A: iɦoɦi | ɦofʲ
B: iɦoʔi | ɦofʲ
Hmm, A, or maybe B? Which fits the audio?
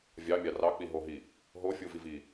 A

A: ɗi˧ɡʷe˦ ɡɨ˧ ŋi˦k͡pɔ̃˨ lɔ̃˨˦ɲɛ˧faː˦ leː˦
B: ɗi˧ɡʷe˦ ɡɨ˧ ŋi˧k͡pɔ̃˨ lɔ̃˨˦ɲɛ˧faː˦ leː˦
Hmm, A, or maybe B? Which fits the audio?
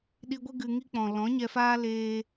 A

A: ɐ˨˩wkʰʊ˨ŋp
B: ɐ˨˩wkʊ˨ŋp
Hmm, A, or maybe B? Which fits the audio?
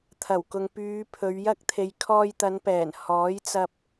B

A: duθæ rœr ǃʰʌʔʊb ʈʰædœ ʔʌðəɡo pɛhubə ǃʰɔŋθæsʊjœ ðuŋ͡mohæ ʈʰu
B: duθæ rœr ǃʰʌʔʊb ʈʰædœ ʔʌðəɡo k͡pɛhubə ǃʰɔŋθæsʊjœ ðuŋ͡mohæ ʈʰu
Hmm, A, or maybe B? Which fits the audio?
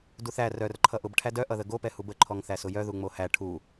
A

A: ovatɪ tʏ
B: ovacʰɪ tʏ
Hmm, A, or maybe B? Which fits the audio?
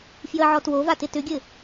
A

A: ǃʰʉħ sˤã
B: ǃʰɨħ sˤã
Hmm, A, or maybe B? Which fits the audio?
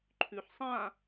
A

